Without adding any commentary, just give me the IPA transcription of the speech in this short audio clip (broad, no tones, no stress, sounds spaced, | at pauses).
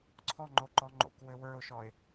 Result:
ǀʰ ɔ ŋ͡ǃ o ǃ ɔ ŋ͡ǃ o̰ k w ɘ w ə˞ ʊ̯ ʃ ɔ ɪ̯